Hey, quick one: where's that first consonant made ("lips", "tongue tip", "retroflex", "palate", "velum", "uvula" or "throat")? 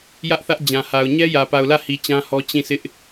palate